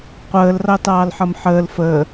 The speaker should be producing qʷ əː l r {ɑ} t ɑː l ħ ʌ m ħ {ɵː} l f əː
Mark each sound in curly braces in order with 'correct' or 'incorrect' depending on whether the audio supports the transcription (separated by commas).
correct, incorrect